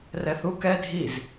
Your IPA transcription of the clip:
r ɛ θ u k ɛ dʱ i z

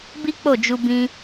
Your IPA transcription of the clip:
b i˦ k͡p o˦˨ d͡ʒ u˧ b ĩ˧

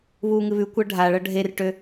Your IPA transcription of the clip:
β uː ŋ ɨ β ʉ kʷ ɤ ɖʱ a ɭ ɤ ɖʱ e r ʈ ø

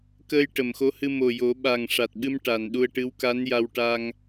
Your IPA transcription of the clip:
k əː˧ j ʈ ə˨˩˨ m x o˧˥ h ɨ˧ m o˨˩ j o˨˩˦ ɓ a˨˩ ŋ ʂ a˨˩ t̚ ɓ ɨ˧ m ʈ a˨˩ n ɗ u˧ ə̯ ʈ ɨ˧˥ w k a˧˥ n j a˧ w ʈ a˧ ŋ

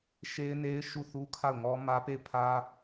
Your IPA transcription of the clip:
ʃ e˦ ɪ̯ n e˦ ɪ̯ ʃ u˦˨ θ u˦ kʰ a˦˨ ʊ̯ ŋ ɔ˦ m ä˦ p e˦˨ ɪ̯ pʰ ä˦

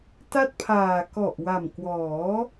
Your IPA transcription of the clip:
t a˥˩ t̚ pʰ aː˨˩ k ɔ˨˩ ʔ w a˨˩ m k w ɔː˩˦

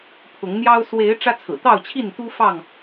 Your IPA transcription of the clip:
pʰ ʊ˨˦ ŋ n̪ j ɑ˦ ʊ̯ s w e˨˦ ɪ̯ ʈ͡ʂ ä˦ t͡sʰ ɹ̩˨˩ t̪ ɑ˥˨ ʊ̯ t͡ɕʰ i˥˨ n t̪ u˦ f ɑ˥˨ ŋ

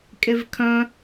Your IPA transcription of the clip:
kʼ e v kʰ œ̃

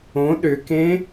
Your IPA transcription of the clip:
õ ɗ ʏ k ẽ

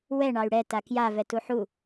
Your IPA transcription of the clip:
w ɛ ɳ ɑ y̯ ɽ ɛ t a k j a v ɛ t u ħ u

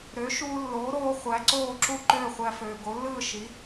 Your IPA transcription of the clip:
ɾ ø˩˥ ʃ uː˧ lː oː˩˥ ɾ oː˧ χʷ æ˩˥ ǀ oː˥˩ ǁ u˥˩ ǃ øː˥˩ χʷ æ˧ f øː˩ ɡ o˩˥ lː ɯː˥˩ ʃ i˩˥

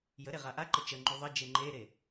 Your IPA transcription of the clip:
j ə ɾ e ʁ a ʔ a ǃ ə t͡ʃ ə ŋ͡ǃ u ðˤ ə d͡ʒ e ŋ͡ǃ e ɾ e

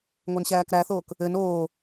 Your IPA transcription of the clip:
ŋʷ e n ɕ æː k ɾ æ θ oː k | ɘ n oː

